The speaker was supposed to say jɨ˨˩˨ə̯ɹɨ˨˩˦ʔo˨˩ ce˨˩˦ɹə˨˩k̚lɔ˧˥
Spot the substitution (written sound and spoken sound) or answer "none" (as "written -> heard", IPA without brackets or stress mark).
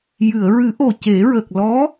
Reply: none